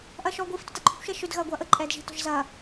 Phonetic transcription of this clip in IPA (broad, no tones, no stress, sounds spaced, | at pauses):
ʔ ɐː ʃ ɔː ɡʷ i f t ʏ t ɐ ǃʼ ʏ kʷ ʃ ɛ ʃ ʏ d ɣ ɐː ɡʷ ɐː ʔ ə ǃʼ ɛː d ʒ i̤ t ɔ̤ ʒ z ɐː